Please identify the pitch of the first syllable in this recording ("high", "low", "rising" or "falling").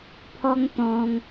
high